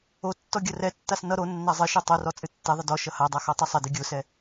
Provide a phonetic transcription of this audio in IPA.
o tː ɔ ɡʲ ʌ r ɛ tː a s n ʌ ɾ o nː a zˤ ɨ ʃ ɛ tˤ o r ɔ t͡sʼ ɨ tː ɛ ðˤ ɪ d ɔ ʃ ʌ h a dˤ a x ɔ tˤ ʌ sˤ ɪ d ɨ ɡʲ o s ɛ

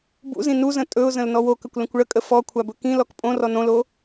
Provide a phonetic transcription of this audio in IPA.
b ṵ z ĩ n u z ə̃ tʼ ɵ ʊ̯ z ə̃ l n ɔ w o k ə kʷ l ə̃ kʷ ɭ ə kʼ ə f ɔ kʷʰ a b ɵ k ĩ l ɔ k pʼ õ r ɔ n õ l o

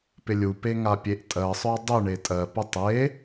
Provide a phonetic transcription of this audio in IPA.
p ɪ lʲ u p e ŋ a pʲ e ʔ tʼ ɜ sˤ œ dˤ y ɳ e tʼ ɜ p u tˤ e

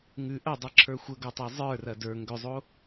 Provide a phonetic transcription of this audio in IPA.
ŋ ʉ ʔ ɐ dˤ ɛ ǁʰ ə˞ xʷ ə ɡ o tˤ a zˤ ə˞ r ɐ d ə˞ ŋ ɡ ʏ zˤ o

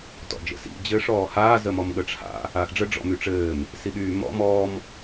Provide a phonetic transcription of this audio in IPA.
t ɔ̰ d͡ʒ ə̰ s ḭ d͡ʑ ɘː ʂ ɔː h aː z ə m ɔ m ɠ ə ʈ͡ʂʰ a̰ | aː x ɖ͡ʐ ə ɖ͡ʐ ɔ̰ m y ʈ͡ʂ ɘː m | s i ɠ yː m ɔ̰ m ɔː m

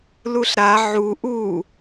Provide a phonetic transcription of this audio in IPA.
l u ɬ ɾ a ʕ u ʔ u

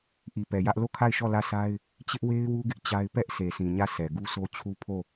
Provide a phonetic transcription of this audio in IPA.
ʔ i˨ p ɛ˨ j ä˦ ʔ l o˦˨ kʰ a˦˨ ɪ̯ ʃ ɔ˦˨ l ä˦˨ s a˦ ɪ̯ | t͡ɕ ɪ˦ ʔ w e˦ ɪ̯ w u˦ ɡ ɪ˦ ʔ t͡ɕ a˦ ɪ̯ p ɛ˦ ʔ s e˨ s ĩ˨ ɲ ä˦˨ s ɛ˨ ɡ u˦ s o˦ t͡ɕʰ u˦ pʰ o˦˨

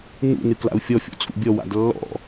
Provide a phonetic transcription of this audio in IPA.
n ṵ n ɨ k l a̰ u̯ fʲ ɔ fʲ ɔ̰ t͡sʼ ṵ bʲ ɔ w a̰ d lː ɔ̰

